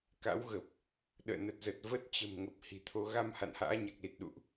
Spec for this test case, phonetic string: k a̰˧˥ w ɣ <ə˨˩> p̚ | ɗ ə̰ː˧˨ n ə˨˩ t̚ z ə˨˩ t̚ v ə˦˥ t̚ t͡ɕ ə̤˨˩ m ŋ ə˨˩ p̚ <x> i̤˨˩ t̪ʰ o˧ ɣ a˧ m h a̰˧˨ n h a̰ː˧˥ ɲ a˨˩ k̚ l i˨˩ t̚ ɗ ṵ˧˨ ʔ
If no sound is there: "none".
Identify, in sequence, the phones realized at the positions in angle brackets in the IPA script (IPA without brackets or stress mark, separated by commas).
ə˨˩, h